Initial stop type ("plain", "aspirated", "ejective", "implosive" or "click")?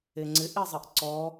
click